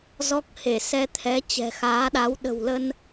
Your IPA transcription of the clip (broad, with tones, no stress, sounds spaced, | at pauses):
z ɔ˦˥ k̚ h e˧˩ s ɛ˧ t̪ʰ ɛ˨˦ t͡ɕ ɛ̤˨˩ x aː˨˦ ɗ a˨˦ w ɗ ə̤˨˩ w l ə˧ n